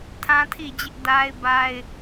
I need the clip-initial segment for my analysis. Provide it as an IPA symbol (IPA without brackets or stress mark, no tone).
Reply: tʰ